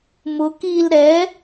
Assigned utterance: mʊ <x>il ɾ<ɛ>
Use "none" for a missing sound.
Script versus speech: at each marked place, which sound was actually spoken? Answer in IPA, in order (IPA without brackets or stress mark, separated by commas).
k, ɛ